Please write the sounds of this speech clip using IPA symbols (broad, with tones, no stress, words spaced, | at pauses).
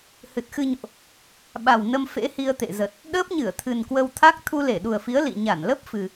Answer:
hɨ˨˩t̚xɨ˧ɲo̰˧˨ʔ | ɓa˨˩wnə˧m fḛ˧˥hi˧ə̯ t̪ḛ˧˨zə˨˩t̚ | ɗəː˦˥p̚ɲɨ˧˩ə̯ t̪ʰɨ˨˩nkwə˧wt̪ʰa˦˥k̚ t̪ʰu˧le˧˩ ɗu˨˩ə̯fi˨˦ə̯ lḭ˧˨ɲa˧˩nlə˦˥p̚ fɨ˨˩